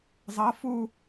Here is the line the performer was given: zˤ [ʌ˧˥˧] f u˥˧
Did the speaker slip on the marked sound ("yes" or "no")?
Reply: no